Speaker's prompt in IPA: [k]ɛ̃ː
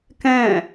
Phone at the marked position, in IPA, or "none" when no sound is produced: k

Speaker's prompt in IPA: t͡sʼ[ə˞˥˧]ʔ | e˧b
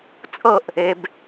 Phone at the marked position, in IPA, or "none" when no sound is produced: ɤ˥˧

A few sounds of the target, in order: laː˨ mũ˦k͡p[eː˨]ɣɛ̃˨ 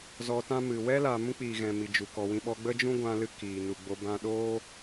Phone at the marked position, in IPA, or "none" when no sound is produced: iː˨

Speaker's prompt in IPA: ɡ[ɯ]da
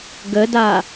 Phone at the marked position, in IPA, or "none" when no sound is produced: ə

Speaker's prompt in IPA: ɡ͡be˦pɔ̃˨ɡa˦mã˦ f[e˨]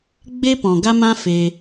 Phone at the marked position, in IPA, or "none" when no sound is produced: e˧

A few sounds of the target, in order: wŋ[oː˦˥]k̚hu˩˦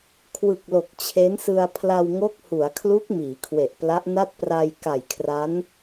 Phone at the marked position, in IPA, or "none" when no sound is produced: o˦˥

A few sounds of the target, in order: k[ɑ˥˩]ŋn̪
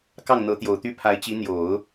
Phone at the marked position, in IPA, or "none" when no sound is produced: ɑ˥˩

